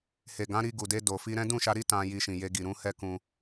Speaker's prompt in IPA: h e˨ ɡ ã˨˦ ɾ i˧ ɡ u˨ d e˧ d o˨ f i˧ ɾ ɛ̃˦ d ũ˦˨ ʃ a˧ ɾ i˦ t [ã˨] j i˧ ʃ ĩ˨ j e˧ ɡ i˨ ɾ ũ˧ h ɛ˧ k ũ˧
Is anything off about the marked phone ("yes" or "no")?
yes